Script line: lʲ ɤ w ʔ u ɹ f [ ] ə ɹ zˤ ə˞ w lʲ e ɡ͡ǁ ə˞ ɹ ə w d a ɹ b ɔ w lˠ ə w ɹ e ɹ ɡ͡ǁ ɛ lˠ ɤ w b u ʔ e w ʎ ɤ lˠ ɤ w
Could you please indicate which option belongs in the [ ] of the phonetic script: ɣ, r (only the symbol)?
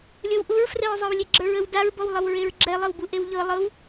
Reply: r